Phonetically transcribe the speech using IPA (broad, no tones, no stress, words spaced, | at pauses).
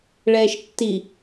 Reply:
ɭɛːʃtːi